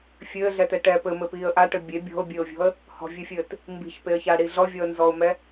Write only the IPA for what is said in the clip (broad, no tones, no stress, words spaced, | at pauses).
fʲɘːɮɛtɛ ʈɛ pɘmɘpiːə̯ ʔaʈɘ bʲe bʲɔ̤ʊ̯bʲɘːʊ̯vʲɔ̤ə̯ | hɔ̤vʲɨfʲɘːt | mbi̤çpeə̯çaɽi ɮɔvʲɔə̯nzɔʊ̯mɛ